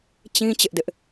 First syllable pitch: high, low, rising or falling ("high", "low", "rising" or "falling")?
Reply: high